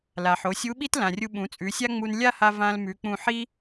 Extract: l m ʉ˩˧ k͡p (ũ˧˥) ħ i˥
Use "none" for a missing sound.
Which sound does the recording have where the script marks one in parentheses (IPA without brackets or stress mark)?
ũ˧